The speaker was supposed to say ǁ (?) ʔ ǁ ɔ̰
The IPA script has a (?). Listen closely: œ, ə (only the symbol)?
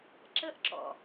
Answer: ə